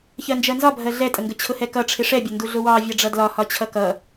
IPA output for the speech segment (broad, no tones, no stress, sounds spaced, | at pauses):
ç ɜ n d͡ʒ ɜ n z ɒ bʱ ɜ ɮ ɛ tʼ ə ŋ ɡ ə t͡ɕʰ ʊ h ɛ k ʌ ʈ͡ʂʰ ɪ ʂ ɛ bʲ ə n d u ɮ ʊ w ɑ vʲ ɑ ɖ͡ʐ ʌ d l ɒ h ɒ t͡ɕʰ ʌ k ʌ